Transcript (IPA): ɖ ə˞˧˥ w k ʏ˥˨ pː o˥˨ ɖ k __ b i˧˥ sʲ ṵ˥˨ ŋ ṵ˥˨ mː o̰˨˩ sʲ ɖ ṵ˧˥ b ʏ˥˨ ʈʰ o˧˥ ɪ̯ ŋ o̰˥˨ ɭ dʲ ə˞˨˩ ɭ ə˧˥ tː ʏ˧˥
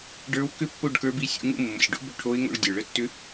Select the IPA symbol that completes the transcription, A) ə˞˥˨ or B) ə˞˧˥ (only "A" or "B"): B